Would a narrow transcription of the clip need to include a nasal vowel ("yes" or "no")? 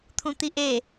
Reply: yes